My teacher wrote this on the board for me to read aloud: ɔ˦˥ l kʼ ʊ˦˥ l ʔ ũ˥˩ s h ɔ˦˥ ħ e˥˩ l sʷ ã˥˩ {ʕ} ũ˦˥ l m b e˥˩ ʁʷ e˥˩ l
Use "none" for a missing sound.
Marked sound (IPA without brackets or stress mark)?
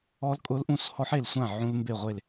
ʕ